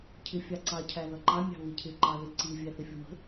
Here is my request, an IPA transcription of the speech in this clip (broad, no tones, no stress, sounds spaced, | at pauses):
cʰ ɪ fʲ ɑ ǀ ɑ cʰ æ ð ʌ ǃ ɑ mʲ ɑ̤ β ɪ cʰ ɪ ǃ ɑ ð ɪ ǀ i vʲ æ θ ɪ fʲ ʊ m ə̤